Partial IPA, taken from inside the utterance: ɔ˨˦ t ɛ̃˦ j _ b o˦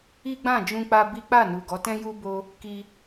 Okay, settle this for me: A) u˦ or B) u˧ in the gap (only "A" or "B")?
A